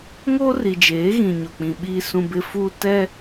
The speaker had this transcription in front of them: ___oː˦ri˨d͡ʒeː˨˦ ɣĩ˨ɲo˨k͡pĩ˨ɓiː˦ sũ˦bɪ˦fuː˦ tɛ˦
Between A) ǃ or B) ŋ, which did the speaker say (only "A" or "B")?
B